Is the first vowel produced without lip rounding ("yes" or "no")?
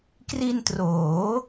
yes